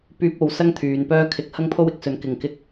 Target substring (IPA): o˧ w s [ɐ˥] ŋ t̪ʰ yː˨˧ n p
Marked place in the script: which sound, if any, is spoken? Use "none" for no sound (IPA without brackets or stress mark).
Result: ɐ˥